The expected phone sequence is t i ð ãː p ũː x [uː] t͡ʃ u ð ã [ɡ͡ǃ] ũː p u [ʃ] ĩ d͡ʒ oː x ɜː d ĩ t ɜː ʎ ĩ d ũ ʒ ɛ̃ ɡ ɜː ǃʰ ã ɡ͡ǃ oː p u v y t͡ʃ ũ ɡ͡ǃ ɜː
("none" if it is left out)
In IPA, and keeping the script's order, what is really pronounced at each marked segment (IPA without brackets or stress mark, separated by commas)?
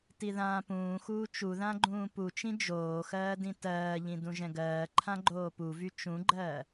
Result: uː, ɡ͡ǃ, t͡ʃ